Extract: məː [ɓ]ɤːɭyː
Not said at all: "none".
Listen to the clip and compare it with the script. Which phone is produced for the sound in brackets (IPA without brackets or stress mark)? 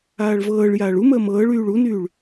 m